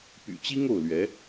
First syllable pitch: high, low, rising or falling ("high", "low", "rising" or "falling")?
low